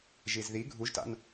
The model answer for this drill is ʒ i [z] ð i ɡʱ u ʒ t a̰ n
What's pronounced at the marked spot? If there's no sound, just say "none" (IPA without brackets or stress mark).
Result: z